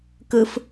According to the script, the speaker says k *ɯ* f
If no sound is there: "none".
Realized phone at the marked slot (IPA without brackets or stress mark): ɯ